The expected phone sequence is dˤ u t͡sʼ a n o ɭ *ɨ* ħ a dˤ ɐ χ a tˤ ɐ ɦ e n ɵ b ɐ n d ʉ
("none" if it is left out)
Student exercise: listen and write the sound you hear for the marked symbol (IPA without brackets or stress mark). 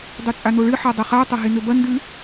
ɨ